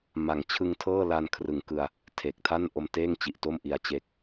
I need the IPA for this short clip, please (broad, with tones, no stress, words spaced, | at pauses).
ma˩˦ŋ t͡ɕʰɯ˧ŋ tʰɤː˥˩la˧nkʰrɯ˨˩ŋkɯ˧a̯ | tʰe˨˩k̚tʰa˥˩n ʔo˧mteː˥˩ŋt͡ɕi˨˩ʔ to˥˩mʔi˧a̯t͡ɕe˦˥k̚